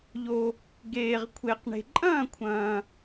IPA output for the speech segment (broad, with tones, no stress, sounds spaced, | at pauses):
ʎ o˨ | ɡ eː˨ ʁ kʷʰ e˨ q ɳ e̤˨ ǃʼ ɐ̃ː˥˨ kʷʰ ɐ̃ː˨